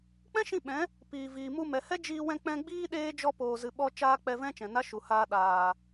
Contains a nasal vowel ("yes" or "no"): yes